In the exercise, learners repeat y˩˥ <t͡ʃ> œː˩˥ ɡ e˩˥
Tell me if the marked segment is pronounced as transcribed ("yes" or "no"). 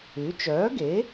yes